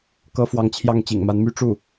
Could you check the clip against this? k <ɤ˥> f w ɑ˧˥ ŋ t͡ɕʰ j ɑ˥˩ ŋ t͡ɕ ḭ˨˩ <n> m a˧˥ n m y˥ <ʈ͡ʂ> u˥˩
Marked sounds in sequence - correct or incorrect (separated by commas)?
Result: correct, incorrect, correct